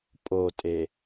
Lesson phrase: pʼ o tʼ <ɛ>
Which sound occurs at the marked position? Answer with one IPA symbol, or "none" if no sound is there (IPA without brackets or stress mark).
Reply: e